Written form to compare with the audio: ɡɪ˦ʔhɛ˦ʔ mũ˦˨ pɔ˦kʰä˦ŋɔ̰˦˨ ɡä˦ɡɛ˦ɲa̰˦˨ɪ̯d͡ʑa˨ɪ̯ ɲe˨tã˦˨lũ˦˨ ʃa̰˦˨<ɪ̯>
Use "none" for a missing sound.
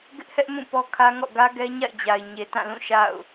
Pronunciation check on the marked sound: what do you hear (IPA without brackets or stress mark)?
ʊ̯